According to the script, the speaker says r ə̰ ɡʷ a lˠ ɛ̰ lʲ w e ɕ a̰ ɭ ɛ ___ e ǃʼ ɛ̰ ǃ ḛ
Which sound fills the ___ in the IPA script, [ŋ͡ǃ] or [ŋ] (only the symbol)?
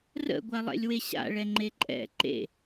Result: ŋ͡ǃ